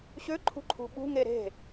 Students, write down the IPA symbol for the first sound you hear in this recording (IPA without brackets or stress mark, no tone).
ɕ